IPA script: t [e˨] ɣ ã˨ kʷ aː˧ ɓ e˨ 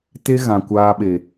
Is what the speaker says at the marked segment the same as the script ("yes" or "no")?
no